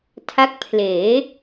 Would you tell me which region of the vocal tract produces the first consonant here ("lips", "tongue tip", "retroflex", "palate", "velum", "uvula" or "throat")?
tongue tip